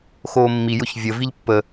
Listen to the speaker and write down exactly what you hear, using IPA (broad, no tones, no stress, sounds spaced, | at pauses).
x oː mː i j ʊ ç vʲ ə v i ʎ pː ə